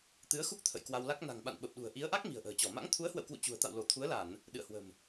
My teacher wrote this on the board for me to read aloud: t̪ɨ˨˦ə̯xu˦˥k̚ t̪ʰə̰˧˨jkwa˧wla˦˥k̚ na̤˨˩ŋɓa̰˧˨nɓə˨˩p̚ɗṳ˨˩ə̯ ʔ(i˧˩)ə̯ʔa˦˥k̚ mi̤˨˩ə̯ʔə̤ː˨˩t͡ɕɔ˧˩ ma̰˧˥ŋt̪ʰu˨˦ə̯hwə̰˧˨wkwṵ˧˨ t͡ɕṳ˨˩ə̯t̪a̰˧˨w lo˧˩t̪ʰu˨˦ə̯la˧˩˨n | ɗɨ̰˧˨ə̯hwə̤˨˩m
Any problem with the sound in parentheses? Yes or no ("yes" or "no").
yes